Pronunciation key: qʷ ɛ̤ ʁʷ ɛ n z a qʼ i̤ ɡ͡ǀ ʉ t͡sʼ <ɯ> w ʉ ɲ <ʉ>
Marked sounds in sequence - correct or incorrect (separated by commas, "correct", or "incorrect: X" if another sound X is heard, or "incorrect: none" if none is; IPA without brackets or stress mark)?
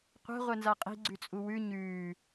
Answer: incorrect: u, incorrect: ʉː